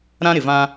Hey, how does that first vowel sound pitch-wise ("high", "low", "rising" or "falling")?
high